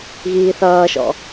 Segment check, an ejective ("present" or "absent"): absent